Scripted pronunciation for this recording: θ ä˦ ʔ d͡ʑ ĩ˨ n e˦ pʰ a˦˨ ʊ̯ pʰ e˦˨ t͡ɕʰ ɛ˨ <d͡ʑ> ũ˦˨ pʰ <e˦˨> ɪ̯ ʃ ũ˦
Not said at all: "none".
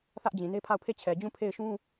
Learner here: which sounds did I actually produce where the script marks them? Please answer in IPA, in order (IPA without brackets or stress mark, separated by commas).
d͡ʑ, e˦˨